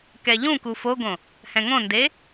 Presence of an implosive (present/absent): absent